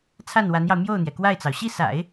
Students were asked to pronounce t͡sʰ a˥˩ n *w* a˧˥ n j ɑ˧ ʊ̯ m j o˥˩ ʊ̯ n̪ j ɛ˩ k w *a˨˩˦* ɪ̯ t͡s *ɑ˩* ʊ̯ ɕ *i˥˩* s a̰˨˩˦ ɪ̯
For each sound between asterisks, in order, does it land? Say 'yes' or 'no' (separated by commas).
yes, no, yes, yes